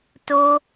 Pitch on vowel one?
high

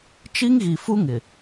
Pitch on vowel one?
high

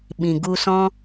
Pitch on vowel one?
low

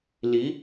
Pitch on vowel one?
rising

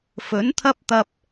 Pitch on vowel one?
rising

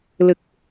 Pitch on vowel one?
low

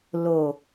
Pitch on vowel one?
low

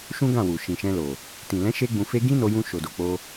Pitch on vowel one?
high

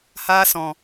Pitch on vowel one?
high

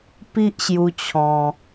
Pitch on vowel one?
high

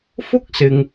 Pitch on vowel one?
high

